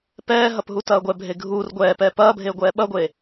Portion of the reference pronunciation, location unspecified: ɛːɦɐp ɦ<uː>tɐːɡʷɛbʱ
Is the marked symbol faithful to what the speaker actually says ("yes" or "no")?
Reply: no